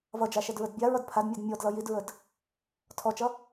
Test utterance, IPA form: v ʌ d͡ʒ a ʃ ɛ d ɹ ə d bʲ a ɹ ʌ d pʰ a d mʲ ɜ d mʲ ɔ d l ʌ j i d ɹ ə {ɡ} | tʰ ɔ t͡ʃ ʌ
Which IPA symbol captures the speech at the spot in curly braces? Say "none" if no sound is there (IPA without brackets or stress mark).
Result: d